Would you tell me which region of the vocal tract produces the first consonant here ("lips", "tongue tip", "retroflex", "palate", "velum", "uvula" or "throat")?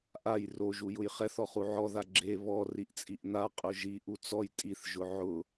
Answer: throat